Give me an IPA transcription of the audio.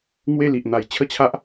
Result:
ŋwe˥˧li˨ʔn̪a˨˩j t͡ɕʰə˥˧t͡ɕʰa˦ʔ

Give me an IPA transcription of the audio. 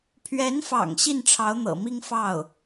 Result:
pʰɥɛ˧˥nfɑ̰˨˩ŋ ɕi˥˩nʈ͡ʂʰɑ˧˥ʊ̯n̪ɤ̰˨˩mi˥ŋ fɑ˥˩ʊ̯

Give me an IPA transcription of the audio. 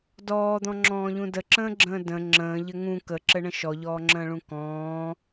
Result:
dɔːd̪ɔ̃ŋ͡ǁɔ̃ːʎũ dəǁə̃ːɡ͡ǁə̃ː də̃ ŋ͡ǁə̃ːʎɘ ŋũ kəǁɘɳə̃ ʃɔʎɔːŋ͡ǁə̃ːɭũ kɔ̃ː

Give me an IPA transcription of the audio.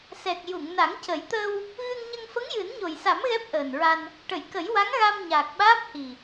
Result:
sɛ˨˩k̚ ju˨˩˨ŋna˨˩˦ŋ cə˨˩˦jt̪əː˧w | ɣɨ˧ŋɲə˧ŋ fə˧˥ŋjɨ˨˩˦nɲo˨˩jsa˨˩˦m ɣɛ˦˥p̚ʔəː˨˩nɹa˧n | ʈə˨˩˨jkə˨˩˦jwa˧˥ŋ ɣa˧m ɲaː˨˩k̚ɓaː˦˥p̚hi˨˩

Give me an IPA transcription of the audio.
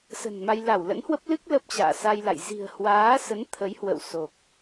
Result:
sə̤˨˩nma˧j la˧˩wlə̰˧˥nhwə˦˥p̚ lɨ˦˥k̚ lə˦˥p̚t͡ɕa̰ː˧˨sa˧jla̰˧˨j zi̤˨˩ə̯hwaː˨˦sə˨˦n t̪ʰə˨˦jhwə̰˧˨wso˨˩k̚

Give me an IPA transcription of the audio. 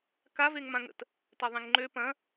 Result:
ka veŋmãŋə̰t | taðˤẽŋŋ͡ǃø pɐ̃

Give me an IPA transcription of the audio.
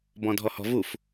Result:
bɔ̃dʱɔhɔ̤vuf

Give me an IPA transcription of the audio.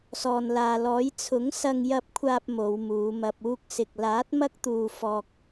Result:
sɔː˨nlaː˨lɔː˨˥j t͡sʰʊ˨˥ŋsɐ˧ŋjɐ˧p̚kʷʰaː˧p̚ mo˨˧wmuː˨˧mɐ˧p̚ uː˧k̚sɪ˨k̚laː˨˥t̚ mɐ˥k̚t̪uː˧fɔː˧k̚

